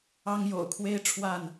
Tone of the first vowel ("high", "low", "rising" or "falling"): high